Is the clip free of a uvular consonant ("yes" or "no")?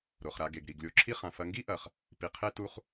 no